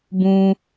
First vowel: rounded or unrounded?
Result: rounded